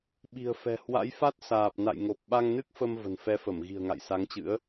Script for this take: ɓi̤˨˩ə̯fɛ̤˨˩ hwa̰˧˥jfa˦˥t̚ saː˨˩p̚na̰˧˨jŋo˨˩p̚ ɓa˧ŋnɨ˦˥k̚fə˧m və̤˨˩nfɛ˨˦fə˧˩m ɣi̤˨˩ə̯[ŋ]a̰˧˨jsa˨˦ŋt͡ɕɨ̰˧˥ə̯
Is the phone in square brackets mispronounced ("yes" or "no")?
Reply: no